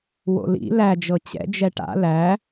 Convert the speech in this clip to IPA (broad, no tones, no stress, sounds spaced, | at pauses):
w o̰ l ḭ l æ d͡ʒ ɤ t͡ɕ ɛ̰ d͡ʒ ɛ ʈ a̰ l æ